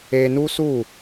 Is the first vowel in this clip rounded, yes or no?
no